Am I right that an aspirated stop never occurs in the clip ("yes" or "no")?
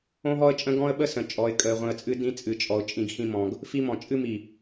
yes